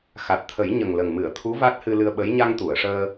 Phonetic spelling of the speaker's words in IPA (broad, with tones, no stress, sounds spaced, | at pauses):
x a˨˩ t̚ t̪ʰ ə˨˩˦ j ɲ ə˨˩ ŋ l ə˨˩ ŋ m ɨ˨˩˨ ə̯ t̪ʰ u˧˥ v a˦˥ t̚ h ɨ˧ l ɨ˧ ə̯ ɓ ə˧˥ j ɲ a˧ ŋ t̪ u˨˩˨ ə̯ ʂ əː˧